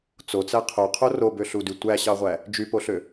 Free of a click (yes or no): yes